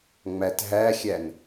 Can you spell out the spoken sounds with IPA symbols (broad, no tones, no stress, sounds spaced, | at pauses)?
ŋ͡m æ t ɦ æ xʲ æ n